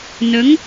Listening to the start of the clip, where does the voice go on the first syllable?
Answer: rising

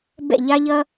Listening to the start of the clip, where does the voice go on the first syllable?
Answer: falling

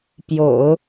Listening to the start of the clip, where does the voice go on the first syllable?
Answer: low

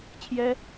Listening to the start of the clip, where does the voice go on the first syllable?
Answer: high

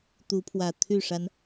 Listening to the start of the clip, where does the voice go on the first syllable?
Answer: rising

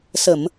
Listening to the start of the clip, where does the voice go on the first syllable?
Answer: low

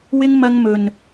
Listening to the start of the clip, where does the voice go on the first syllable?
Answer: high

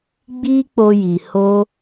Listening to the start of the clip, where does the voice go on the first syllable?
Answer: high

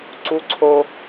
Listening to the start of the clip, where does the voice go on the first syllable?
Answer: high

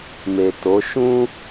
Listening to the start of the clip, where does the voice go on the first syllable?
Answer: low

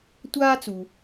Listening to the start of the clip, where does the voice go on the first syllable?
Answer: high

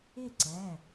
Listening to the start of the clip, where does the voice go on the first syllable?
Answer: falling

